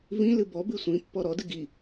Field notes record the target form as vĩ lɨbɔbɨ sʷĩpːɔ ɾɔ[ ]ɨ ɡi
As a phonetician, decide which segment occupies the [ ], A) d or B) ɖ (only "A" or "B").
A